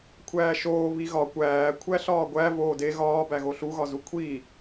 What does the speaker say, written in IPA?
kʷʰ æː ʃ oː β i ɣ ɒ kʷ æː kʷʰ æ ɬ ɒː ɡʷ æ v oː d e ɣ ɒː b æ ɣ o ɬ u ɣ ɒ z u kʷʰ iː

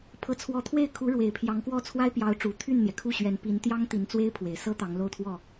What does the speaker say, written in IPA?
pʰ ɤ˧˥ t͡sʰ w ɔ˧˥ t̪ʰ w e˥˩ ɪ̯ kʰ u˧˥ ɻ w e˨˩ ɪ̯ pʰ j ɑ˧˥ ŋ k w ɔ˥˩ t͡sʰ w a˥ ɪ̯ p j ɑ˧˥ ʊ̯ ʈ͡ʂ u˨˩ t̪ʰ y˥˩ n n̪ j ɛ˩ kʰ u˥˩ ɕ ɥ ɛ˧˥ n p i˧˥ n t̪ j ɑ˥ ŋ t̪ i˧˥ n t͡s w e˥ ɪ̯ pʰ w e˨˩ ɪ̯ s ɤ˥ t̪ ɑ˧˥ ŋ l o˥˧ ʊ̯ t̪ʰ w ɔ˥˩

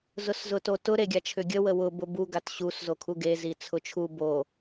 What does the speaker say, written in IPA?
z ʊ s z ʊ t o t ʊ ɾ e ɡʲ a t͡ʃʰ ʏ ɡʲ ə w ə w ʊ b ʊ b u ɡ a t ɕ u s z o kʰ u ɡ e z i t͡sʰ ʊ t͡ʃʰ u b o

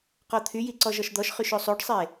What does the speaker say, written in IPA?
q ɔ t̪ʰ y j i ǀ ɔ ʒ ɔ ʃ d̪ ɔ ʃ χ y ʃ o sˤ o ɖ sˤ e

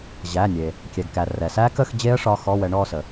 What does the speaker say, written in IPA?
ʑ æ˩˧˩ nʲ e˩ | kʲ ɛ˩ ɡ k æ˩ r ɛ˩ s æ˦˥ k ə˥˧ x d͡ʑ e˦˥ ə̯ ʂ ɒ˧˥˧ x ɔ˧˥˧ w ɛ˨˦ ɳ ɔ˥˧ s ə˩

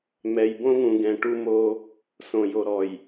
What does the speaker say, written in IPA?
m ɛ˨ j b õ˦ ŋ ũ˨ ɡ ɛ̃˨ ʈ u˦ m o˦ | s õ˨ j o˨ ɾ ɔ˨ j

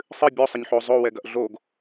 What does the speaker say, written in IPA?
sˤ ɨ bʲ o sˤ ɐ ɲ ħ o zˤ o w ɛ ɡ ɐ ʔ ɮ o ɡ

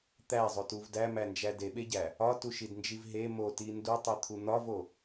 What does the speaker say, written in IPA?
t̪ æ zˤ o t u v d æ m æ n d͡ʒ æ d e ɓ e ɟ æ | ɒ t u ʃ i d n d͡ʒ i v ɦ e m o t i n d u tˤ i t̪ʰ u n̪ ɒ v o

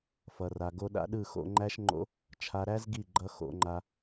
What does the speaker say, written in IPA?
f ʌ˧ r a˧ ɡ o˧ ɗ a̰˦ ɗ ɯ˦˨ x o̰˧ ŋ͡ǃ æ˦ ʃ ŋ͡ǃ o̰˦ | t͡ʃʰ a˧ ɾ æ˦ z ɡ i˦˨ ɡ͡ǃ ʌ˦ x o̰˧ ŋ͡ǃ a˧

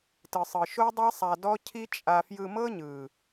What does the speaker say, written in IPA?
t ɯ˨ sˤ ɯ˨ ʃ o˦ dˤ e˦ sˤ a˧ d ɔ˦ cʰ i˦ t͡ʃʼ a˧ f j ɯ˧ m ɤ˦ ɲ ɯ˨

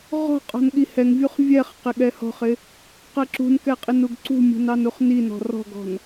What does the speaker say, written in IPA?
ʁ ɔ̤ qʼ ɔ̤ n ɠ i h ɛ ŋ vʲ u χ vʲ ɛ χ q ɪ ɠ ɛ h ɔ̤ χ ɪ | q ɜ ǁ ṳ n k ɛ qʼ ɪ n u ɡ ǀ ṳ mʲ ṳ n ɑ n u χ n i n ɔ̤ r ɔ̤ ɡ ɔ̤ n

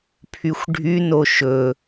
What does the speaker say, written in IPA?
pʰ y xʷ ɖʱ y n o ʃ ɵ

